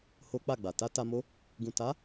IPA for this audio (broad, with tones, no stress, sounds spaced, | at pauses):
h o˦ k͡p a˦˨ ɡ͡b a˨ t a˧ t a˧ m o˦ | ɡ ũ˨ t a˨˦